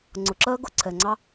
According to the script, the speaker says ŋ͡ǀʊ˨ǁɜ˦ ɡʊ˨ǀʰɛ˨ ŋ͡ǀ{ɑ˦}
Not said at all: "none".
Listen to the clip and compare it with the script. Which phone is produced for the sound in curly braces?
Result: ɑ˦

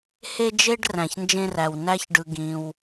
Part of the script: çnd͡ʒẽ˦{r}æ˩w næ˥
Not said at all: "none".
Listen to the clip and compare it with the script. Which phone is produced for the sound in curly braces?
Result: r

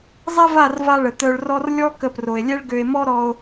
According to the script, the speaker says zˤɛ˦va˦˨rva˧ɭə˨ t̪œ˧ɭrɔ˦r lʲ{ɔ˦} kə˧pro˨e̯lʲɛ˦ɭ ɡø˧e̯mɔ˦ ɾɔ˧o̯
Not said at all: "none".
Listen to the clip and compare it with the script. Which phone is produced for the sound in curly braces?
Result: ɔ˦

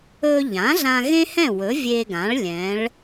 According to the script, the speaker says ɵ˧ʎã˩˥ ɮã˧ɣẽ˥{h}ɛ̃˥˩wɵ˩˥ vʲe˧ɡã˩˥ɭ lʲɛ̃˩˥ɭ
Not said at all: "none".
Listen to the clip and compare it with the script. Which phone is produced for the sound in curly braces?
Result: h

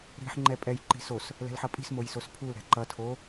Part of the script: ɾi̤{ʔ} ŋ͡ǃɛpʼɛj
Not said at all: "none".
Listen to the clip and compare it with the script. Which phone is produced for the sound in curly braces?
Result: ħ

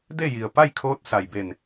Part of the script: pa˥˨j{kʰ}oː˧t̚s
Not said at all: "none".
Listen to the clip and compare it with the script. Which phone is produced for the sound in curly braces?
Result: kʰ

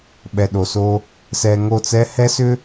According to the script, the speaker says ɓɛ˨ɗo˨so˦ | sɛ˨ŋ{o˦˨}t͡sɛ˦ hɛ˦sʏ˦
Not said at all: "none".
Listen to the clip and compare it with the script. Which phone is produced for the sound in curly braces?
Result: o˦˨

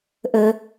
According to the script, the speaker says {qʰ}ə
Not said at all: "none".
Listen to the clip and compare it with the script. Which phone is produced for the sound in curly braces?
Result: ʔ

